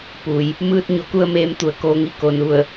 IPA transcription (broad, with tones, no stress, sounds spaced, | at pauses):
p u˩ j | m ɯː˧ t̚ ɲ o˧˩ k u˧ ə̯ m eː˩˧ m t̪ u˩ ə̯ k oː˩˧ ŋ i˩˧ k o˩ n u˧˩ ə̯